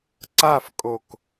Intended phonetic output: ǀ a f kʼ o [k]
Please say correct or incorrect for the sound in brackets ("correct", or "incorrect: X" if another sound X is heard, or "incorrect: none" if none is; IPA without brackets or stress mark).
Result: correct